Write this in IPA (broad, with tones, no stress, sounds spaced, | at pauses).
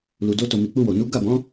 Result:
l u˨ d o˧ t o˨ m i˨ k͡p u˧ w o˨ n u˨˦ ɡ a˦˨ b ɔ̃˨˦